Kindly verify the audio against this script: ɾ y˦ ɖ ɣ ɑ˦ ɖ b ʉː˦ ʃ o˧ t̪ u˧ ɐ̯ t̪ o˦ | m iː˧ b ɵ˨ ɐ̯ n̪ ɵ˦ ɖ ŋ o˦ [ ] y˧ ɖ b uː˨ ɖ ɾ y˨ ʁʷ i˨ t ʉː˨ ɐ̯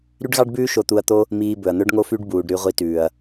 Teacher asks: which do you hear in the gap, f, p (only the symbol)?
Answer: f